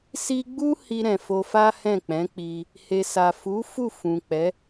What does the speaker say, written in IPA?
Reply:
s i˧ ɡ͡b u˦ h i˧ ɾ ɛ̃˨ f o˧ f a˦ h ɛ̃˦˨ k͡p ɛ̃˨˦ k͡p i˧ | h e˨ s a˨ f u˨˦ f u˦˨ f ũ˨ k͡p ɛ˨˦

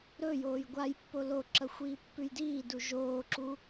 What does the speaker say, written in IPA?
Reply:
ɾ ɵ j oː j ɡʷ a j pː o l o ǁ ɐ xʷ iː pː ʉ j d iː d u ʒ oː ǁ u

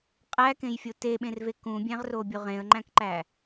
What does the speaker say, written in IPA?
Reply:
qʼ æ k ẽ j fʲ o t e ɓ ẽ r v e k ũ bʲ æ̃ ʁ r o bʲ o ʁ ẽ ə̯ ŋ͡ǃ æ̃ k ǃ æ

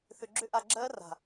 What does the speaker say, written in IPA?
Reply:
θ ʏ˧ ɡ͡ǁ ʏ˦ ʔ a˧ ɡ͡ǁ ɜː˦ r a̤˨

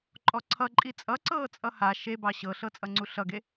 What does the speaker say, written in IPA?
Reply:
ǃʼ ɔ ǀʰ ʌ ǃʼ i t͡sʼ ʌ ǀ ɤː t͡sʼ ʌ h a ʃ e b ɑ ɕ ɤ ɬ ɤ t͡sʼ ʌ ŋ͡ǀ u ɬ ʌ ɡ e

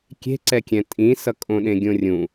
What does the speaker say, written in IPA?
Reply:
kʲ e̤ ǀ ɛ kʲ ɛ̃ tʼ ĩ s ʌ kʼ õ ɗ ẽ ɡʲ õ rʲ ũ

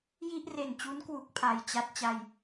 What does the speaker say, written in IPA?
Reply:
j i˥˩ ʔ r e˨˩ n t͡ɕ u˦˥ n k w u˦˥ k̚ pʰ a˨˩ j t͡ɕ a˥˩ t̚ t͡ɕ a˧ j

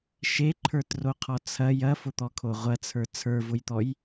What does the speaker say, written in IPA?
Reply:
ʃ e ǃʰ ə˞ t r o qʰ ɔ t͡sʰ ɐ j ɐ f ʊ t̪ ɔ kʰ o ʁʷ ɐ t͡sʰ ə˞ t͡sʰ ə˞ v ʊ j t̪ ɔ j

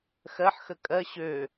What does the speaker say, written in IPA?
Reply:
x ɜ ħ x ə kʼ ɜ ɕ ø

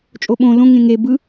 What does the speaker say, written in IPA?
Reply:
t͡ʃʼ o ɓ õ l õ ŋ ẽ ŋ e b ɯ

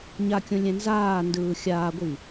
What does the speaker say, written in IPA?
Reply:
ɲ a kʲ õ lʲ ɛ̃ n z aː n d ɯː xʲ aː ɡʷ i

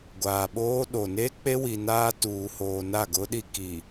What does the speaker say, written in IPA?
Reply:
ɡʷ aː˨ ɓ oː˦ ɗ o˨ n e˦ k͡p e˦ w i˨ n aː˦ t uː˨ h oː˨ n a˦˨ ɡ ʊ˦ ɗ i˦ k i˨

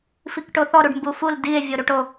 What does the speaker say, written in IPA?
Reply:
f i k ʈ o θ ɔ ɾ u ɖ m b u f u l d i e̯ vʲ o ɾ u ʈ o

